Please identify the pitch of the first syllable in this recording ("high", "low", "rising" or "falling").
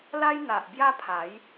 high